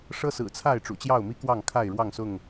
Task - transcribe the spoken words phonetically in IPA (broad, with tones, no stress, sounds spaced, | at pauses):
ʂ ɤ˦ s ɹ̩˨˩ t͡sʰ a˥˨ ɪ̯ ʈ͡ʂ ṵ˨˩ t͡ɕ j ɑ˥˨ ʊ̯ m i˦ k w ɑ˥˨ ŋ kʰ a˥˨ ɪ̯ ɻ w ɑ˥˨ ŋ s ʊ˥˨ ŋ